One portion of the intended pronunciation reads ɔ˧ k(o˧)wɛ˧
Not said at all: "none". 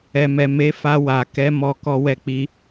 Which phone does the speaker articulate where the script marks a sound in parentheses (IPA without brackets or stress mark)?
ɔ˧